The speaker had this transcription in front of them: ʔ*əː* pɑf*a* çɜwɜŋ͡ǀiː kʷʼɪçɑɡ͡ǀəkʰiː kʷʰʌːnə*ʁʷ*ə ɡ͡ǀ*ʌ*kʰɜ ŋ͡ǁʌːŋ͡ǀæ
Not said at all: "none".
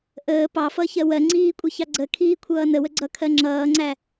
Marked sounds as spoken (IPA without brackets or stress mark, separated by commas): əː, ʌ, w, ʌ